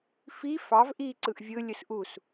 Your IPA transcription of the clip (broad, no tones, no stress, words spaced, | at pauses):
fi fɑv ʔiːǀɯʔvʲɯ lʲɯsʔus